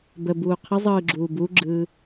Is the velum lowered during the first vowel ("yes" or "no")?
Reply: no